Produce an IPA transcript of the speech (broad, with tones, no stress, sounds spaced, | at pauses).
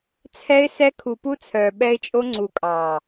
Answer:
t͡sʰ ɛ˧ ɪ̯ s ɛ˧ kʰ u˨ p u˧ t͡sʰ œː˨ ɓ ɛ˧ ɪ̯ t͡ʃʼ o˧ ŋ͡ǀ u˨ kʼ ɑː˨